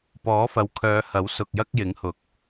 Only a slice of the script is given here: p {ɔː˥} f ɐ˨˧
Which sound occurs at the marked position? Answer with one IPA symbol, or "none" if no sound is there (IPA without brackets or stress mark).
ɔː˨˥